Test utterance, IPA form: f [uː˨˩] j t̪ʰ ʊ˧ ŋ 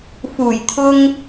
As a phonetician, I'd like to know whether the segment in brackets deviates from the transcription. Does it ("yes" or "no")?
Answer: no